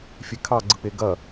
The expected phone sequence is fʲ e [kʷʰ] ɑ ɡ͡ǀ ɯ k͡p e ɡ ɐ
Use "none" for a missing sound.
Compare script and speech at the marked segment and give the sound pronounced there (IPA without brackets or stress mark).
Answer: kʰ